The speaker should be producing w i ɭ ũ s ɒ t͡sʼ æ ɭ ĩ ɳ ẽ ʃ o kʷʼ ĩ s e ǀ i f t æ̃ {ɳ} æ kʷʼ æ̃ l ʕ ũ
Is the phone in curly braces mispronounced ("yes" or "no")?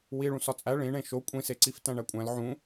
no